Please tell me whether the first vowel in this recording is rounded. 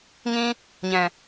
no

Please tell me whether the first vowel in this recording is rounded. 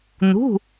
yes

